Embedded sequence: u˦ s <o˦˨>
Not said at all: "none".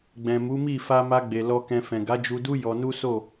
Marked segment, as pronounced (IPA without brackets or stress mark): o˦˨